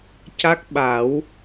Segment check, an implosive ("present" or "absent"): present